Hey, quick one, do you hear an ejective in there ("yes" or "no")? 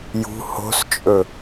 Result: yes